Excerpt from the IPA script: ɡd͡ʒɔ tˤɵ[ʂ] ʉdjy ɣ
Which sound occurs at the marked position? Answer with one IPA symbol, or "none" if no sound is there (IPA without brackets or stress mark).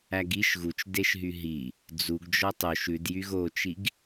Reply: ʃ